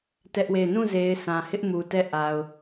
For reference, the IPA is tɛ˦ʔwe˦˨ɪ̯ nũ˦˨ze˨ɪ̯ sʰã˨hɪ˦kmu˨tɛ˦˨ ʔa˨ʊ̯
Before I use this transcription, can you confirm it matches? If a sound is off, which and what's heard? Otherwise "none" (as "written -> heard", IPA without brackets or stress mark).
k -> ʔ